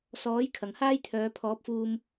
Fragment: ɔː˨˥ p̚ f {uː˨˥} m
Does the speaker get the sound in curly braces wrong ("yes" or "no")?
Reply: yes